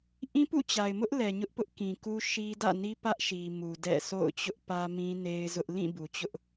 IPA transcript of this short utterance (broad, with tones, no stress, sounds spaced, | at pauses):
ʔ ĩ˦ p ṵ˦˨ t͡ɕ a˨ ɪ̯ m ʊ˦ ʔ l ɛ˨ ɲ ʊ˦ ʔ p ʊ˦ ʔ k ĩ˨ k u˦ ʃ i˦ d ä̰˦˨ n i˦ p ä˦ ʔ ʃ i˨ m u˨ d ɛ̰˦˨ sʰ o̰˦˨ ʊ̯ t͡ɕ ʊ˦ ʔ p ä˦ m ĩ˦ n e˦ ɪ̯ z ʊ˦ ʔ l ĩ˦˨ b u˨ t͡ɕ ʊ˦ ʔ